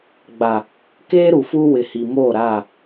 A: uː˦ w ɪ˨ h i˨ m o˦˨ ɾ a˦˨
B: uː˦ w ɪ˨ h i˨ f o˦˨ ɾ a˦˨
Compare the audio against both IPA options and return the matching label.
A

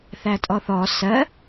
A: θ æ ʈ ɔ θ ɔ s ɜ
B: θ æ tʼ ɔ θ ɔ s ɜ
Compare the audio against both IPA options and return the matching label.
B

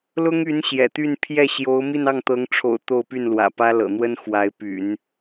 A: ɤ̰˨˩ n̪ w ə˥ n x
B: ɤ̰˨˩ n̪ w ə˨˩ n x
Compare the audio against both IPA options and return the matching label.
A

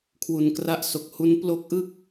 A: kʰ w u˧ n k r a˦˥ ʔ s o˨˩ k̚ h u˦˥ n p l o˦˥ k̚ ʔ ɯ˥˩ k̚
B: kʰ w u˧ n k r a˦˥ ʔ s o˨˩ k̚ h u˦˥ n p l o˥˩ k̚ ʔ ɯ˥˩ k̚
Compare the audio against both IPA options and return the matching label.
A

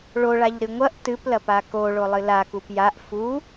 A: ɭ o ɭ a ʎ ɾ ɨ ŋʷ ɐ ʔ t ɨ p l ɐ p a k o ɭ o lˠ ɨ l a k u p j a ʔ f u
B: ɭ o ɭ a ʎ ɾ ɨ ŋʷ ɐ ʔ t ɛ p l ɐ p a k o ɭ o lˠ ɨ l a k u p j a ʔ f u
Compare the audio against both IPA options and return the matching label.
A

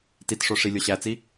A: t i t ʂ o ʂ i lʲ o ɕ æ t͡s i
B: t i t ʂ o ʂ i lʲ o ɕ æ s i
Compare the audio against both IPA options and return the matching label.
A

